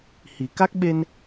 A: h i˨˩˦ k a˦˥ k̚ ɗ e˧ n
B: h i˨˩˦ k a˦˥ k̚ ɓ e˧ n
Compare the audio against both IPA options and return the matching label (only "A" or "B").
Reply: B